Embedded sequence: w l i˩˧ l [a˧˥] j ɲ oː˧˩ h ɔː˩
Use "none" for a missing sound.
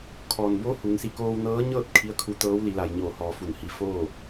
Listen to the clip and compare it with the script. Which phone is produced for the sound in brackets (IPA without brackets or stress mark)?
a˩